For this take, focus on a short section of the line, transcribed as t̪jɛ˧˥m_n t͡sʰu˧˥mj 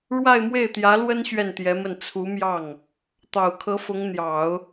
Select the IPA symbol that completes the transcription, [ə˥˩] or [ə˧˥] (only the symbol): ə˥˩